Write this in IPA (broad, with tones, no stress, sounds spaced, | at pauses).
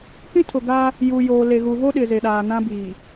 k ĩ˦ tʰ ʊ˨ ɡ a˦ | j uː˨ j oː˨ l e˨ ɣ u˨ v o˦ ɗ ɪ˨ z e˨ ɗ aː˨ n ã˦ b iː˨